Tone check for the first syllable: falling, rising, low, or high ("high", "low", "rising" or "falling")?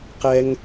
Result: high